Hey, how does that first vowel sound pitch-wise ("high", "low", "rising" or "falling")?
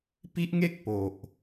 high